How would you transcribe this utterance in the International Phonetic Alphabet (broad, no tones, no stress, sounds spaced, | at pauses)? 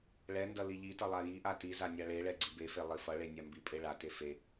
ɭ ɛ n d ʌ l i ʎ i t ʌ lˠ a j i ʔ a t i z a nʲ a ɭ e ɭ ɛ ɡ͡ǀ i b e f e lˠ i f ʌ ɭ e nʲ a m b i pʼ e ɭ a t e f e